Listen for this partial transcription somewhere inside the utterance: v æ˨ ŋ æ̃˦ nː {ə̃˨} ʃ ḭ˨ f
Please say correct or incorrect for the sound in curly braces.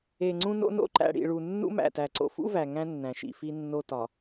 incorrect